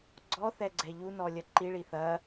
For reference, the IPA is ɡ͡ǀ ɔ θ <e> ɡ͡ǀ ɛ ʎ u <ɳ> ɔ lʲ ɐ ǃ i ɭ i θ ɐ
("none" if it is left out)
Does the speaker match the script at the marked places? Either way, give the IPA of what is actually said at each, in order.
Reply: ɛ, n

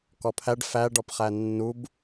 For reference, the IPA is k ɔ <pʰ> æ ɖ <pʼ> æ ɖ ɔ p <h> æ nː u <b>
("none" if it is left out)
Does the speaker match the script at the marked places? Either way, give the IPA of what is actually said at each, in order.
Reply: pʰ, f, χ, b

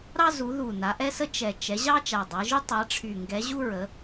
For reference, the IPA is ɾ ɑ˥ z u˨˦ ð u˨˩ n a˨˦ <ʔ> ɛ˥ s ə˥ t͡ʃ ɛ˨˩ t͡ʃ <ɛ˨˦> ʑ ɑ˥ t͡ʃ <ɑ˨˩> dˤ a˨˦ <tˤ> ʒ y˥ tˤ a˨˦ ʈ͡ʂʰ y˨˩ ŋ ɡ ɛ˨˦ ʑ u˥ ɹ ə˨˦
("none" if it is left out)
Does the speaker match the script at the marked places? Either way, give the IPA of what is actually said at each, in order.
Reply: ʔ, ɛ˨˦, a˨˩, none

